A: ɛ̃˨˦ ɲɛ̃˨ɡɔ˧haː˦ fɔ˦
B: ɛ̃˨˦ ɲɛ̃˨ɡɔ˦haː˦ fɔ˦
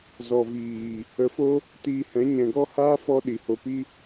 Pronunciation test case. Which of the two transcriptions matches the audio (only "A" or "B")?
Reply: B